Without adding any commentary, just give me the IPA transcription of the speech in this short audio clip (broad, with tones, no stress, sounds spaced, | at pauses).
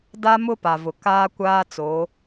d a˦ m ʊ˦ p a˨ v ʊ˨ k aː˦ kʷ aː˦ t͡s oː˨˦